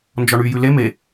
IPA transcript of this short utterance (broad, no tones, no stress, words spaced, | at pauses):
nd͡ʒɔɳy jʉle me